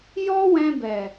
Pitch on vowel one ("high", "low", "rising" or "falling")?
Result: high